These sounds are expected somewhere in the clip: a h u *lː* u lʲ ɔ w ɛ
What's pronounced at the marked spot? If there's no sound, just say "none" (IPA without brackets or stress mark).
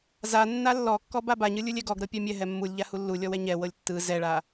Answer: lː